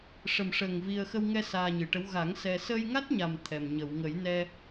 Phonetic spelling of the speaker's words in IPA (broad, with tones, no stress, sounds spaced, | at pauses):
ʂ ə˨˩ m ʂ əː˨˩ ŋ v i˧ ə̯ x ə˧ w ŋ ɛ˧ s aː˧ ɲ ɨ˨˩ ʈ ə˧˥ w ɣ a˨˩˦ ŋ s ɛ˧ s ə˧ j ŋ a˦˥ t̚ ɲ a˨˩ m t̪ʰ ɛ˨˩ m ɲ ə˨˩˨ w ŋ ə˨˩˦ j n ɛ˧